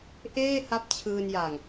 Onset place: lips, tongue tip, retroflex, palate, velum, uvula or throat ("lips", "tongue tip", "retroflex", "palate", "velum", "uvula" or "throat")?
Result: throat